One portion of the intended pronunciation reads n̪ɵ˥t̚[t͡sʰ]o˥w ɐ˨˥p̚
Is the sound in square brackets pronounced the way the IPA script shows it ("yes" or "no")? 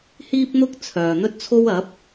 yes